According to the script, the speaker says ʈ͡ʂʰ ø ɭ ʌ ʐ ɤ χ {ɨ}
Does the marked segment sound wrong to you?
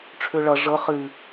no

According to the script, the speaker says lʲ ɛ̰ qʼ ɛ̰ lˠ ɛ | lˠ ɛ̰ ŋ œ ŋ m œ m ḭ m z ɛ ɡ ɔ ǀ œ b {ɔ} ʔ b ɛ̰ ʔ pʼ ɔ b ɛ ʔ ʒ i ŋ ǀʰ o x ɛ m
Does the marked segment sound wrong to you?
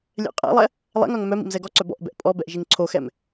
yes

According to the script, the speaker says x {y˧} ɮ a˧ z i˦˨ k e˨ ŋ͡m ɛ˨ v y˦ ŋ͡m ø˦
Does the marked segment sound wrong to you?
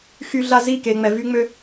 no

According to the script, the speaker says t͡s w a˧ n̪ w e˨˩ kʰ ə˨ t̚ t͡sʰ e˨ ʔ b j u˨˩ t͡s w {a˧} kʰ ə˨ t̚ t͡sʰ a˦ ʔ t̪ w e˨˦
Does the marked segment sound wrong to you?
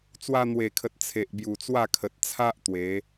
yes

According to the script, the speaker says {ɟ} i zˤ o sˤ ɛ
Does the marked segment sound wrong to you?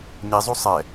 yes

